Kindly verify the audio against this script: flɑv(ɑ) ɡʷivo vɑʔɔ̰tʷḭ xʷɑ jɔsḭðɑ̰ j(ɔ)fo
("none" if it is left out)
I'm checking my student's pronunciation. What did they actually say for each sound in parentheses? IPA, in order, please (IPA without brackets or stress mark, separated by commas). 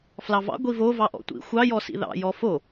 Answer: ɑ̰, ɔ